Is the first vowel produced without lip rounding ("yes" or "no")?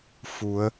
no